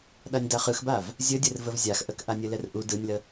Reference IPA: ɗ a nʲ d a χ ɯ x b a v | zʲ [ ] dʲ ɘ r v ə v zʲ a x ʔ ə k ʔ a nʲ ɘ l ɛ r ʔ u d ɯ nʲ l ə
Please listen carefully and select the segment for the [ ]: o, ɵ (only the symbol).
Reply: ɵ